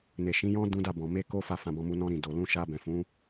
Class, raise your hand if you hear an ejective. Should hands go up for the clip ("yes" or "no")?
no